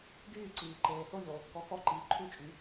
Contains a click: yes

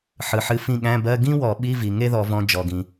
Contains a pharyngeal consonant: yes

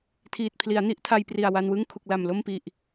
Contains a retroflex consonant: no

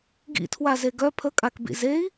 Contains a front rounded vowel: yes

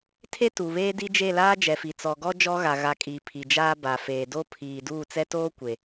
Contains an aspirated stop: yes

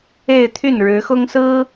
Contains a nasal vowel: no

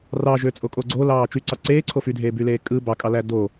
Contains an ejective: yes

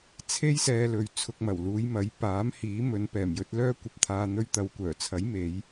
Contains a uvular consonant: no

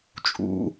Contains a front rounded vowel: no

